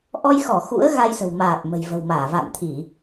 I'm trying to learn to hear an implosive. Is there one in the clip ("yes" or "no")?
no